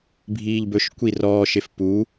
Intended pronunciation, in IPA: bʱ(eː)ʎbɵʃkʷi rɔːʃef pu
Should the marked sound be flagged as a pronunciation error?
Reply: yes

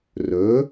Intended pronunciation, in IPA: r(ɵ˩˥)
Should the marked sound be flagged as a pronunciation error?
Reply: no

